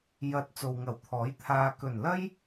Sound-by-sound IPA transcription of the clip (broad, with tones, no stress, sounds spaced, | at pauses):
j ɐ˨˥ t̚ t͡s o˨ w ŋ ɐ˨˩ w t̪ʰ ɔː˨˥ j t̪ʰ aː˧ k ɵ˨˩ n l ɐ˥ j